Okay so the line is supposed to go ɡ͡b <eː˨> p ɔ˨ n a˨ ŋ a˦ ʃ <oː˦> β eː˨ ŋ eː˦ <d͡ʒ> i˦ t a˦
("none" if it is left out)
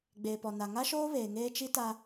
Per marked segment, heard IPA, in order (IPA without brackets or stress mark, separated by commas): eː˨, oː˦, t͡ʃ